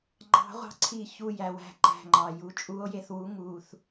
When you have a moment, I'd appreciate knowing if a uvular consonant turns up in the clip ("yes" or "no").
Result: yes